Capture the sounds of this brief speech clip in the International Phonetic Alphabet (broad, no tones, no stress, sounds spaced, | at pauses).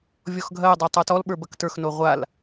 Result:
vʲ ɔ x ɡʱ ɐ j dˤ ø tˤ ə˞ t ɔ l ɓ ə˞ b ɐ k t ə˞ x n o ʁʷ a l